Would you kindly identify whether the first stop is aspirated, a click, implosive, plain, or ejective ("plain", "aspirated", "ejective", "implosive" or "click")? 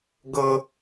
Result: plain